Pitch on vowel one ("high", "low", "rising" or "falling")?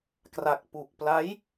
low